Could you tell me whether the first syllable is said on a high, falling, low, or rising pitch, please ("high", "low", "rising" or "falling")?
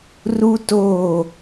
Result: high